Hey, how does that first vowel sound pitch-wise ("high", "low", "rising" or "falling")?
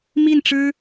falling